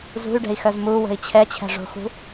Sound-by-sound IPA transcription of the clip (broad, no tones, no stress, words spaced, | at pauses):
zṳy̯ɖɛ̤i̯xœz muwə̤i̯ t͡ɕʰɛt͡ɕʰɛ̤ʐo̤xṳ